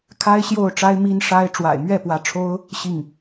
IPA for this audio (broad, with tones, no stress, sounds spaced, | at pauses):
kʰ a˥ ɪ̯ ɕ j o˥˩ ʊ̯ ʈ͡ʂ a˥ ɪ̯ m i˥ n ʂ a˥ ɪ̯ ʈ͡ʂ w a̰˨˩ ɪ̯ m ɥ ɛ˥˩ p w ä˧˥ ʈ͡ʂʰ o˥ ʊ̯ | ɕ i˥˩ ŋ